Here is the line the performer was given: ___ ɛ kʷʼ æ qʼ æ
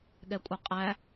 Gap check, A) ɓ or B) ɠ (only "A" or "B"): B